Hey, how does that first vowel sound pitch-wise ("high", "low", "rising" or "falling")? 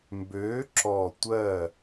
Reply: rising